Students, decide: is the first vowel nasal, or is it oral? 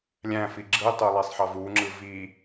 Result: nasal